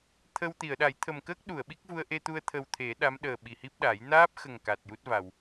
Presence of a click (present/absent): absent